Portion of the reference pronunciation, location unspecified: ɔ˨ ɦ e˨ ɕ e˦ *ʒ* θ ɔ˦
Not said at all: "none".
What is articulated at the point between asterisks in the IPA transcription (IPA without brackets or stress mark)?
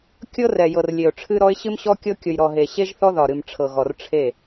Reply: ʒ